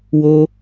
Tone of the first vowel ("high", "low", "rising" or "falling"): high